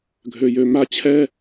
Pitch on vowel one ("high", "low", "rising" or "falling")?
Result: low